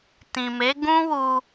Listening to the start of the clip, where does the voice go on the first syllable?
low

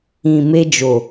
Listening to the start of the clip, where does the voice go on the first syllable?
low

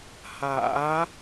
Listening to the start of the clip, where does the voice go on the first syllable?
rising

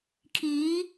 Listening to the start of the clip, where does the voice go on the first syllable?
rising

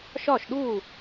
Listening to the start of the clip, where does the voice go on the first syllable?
falling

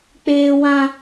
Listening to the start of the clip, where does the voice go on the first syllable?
high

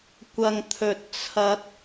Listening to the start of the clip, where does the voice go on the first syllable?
low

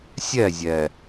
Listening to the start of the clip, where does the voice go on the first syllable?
falling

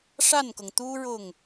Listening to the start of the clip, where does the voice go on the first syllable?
falling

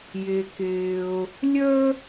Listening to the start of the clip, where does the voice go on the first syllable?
low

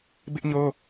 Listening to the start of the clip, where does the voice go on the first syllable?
high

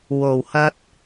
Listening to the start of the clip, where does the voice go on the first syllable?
low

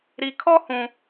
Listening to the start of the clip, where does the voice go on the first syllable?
low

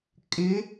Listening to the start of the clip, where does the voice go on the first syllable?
rising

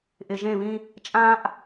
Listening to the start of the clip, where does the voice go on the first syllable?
low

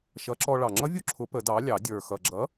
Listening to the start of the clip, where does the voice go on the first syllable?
rising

